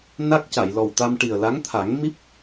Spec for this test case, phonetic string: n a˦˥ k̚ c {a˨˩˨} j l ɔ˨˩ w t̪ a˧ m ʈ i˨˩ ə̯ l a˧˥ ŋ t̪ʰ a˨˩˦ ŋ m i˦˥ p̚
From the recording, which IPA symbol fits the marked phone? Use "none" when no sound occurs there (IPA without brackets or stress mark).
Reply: a˨˩˨